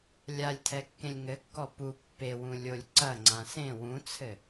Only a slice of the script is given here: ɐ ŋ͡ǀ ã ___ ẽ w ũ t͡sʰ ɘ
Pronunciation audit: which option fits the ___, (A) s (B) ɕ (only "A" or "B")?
A